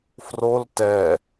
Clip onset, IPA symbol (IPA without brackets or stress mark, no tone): f